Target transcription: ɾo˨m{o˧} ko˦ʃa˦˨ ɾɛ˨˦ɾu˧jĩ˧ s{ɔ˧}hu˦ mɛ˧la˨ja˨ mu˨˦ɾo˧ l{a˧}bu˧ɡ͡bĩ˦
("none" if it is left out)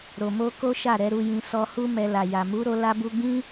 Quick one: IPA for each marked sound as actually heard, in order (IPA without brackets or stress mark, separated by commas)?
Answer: o˧, ɔ˧, a˧